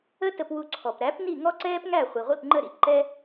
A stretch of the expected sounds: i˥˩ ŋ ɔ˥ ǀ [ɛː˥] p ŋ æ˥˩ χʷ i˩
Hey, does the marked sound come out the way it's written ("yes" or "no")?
yes